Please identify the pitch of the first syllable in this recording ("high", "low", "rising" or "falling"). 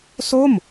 falling